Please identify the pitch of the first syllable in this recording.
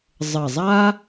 low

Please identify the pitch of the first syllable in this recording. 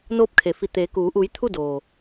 rising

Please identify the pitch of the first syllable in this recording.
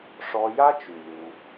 high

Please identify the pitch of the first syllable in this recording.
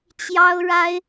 high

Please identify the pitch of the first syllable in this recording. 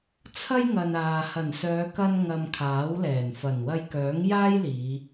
high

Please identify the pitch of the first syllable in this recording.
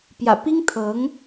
low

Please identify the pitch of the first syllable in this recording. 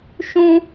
high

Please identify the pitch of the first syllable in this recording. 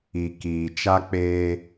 low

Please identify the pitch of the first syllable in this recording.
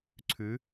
rising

